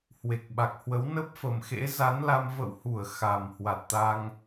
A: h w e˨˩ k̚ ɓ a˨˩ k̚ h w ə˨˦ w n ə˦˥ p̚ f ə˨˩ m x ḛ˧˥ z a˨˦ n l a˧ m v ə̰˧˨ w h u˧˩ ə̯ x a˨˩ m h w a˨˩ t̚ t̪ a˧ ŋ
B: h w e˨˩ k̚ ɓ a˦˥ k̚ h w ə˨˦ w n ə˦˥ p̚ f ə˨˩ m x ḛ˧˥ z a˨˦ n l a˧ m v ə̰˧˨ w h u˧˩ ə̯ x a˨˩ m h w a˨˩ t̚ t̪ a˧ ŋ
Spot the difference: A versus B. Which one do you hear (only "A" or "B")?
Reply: A